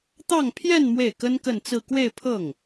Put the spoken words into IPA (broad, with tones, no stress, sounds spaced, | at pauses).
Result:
t̪ ɑ˥˧ ŋ pʰ j ɛ˥˧ n m w e˥˩ ɪ̯ k ə˥ n k ə˥˧ n t͡s ɹ̩˥˧ k w e˥˧ ɪ̯ pʰ ɤ˥˩ ŋ